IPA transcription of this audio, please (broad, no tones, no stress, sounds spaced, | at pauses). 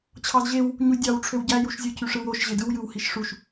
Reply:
t͡ɕʰ ɑ z ʑ e w | ɲ u dʲ ɑ w ʈ͡ʂʰ ø w ɟ æ j u ʃ zʲ ɯ cʰ y ʂ ɯ w o ʃ ʑ e d ɯ w j ɯ w h i ʃ ʂ u ʃ